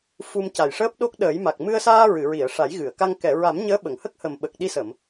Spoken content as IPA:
fu˧mca˨˩jʂəː˦˥p̚ɗo˦˥k̚ ɗəː˨˩˦jma˨˩k̚ mɨ˧ə̯saː˧ ɹɨ˨˩˨ɹi˨˩˨ə̯ ʂa˨˩˦jɣɨ˨˩˨ə̯ka˧ŋ kɛ˨˩˨ɹa˨˩˦m ɲəː˧˥ɓə˨˩˨ŋhə˦˥k̚hə˨˩m ɓə˨˩k̚ɗi˧sə˨˩˨m

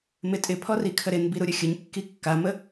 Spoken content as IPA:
mɪtʼɪ pʰɔrikʰəɾɪn biɾuɾʲəxʲəɲ kːikːamə

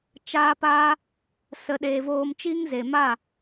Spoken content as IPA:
t͡ʃaː˦paː˦ | sə˧ɗeː˧ voː˧mt͡ʃiː˦ŋze˨ma˦˨

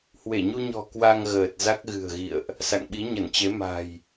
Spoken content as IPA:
hwe˧˩ɲu˧ɲɔ̤˨˩ kwa˧ŋɣəː˨˩t̚ za˦˥k̚ɣɨ̤˨˩ə̯ɣḭ˧˨ə̯ʔ | sa̰˧˨ŋɓi˨˦ɲə˧˩nt͡ɕe˨˦ ma̤˨˩j

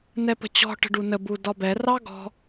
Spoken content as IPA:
nɛpə̤t͡ɕɔ̤ ʈə̤ɖunə budɒbɛ rɑɡɔ̤

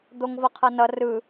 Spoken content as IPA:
d̪oŋvʌqʰʌnʌ rɯ

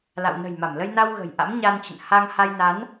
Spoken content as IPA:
la̰˧˨w nə̤˨˩jma˧˩mlə˧jna˧w ɣə̤˨˩jʔa̰˧˥m ɲa˧nt͡ɕə̰˧˨n ha˧ŋha˧jna˨˦n

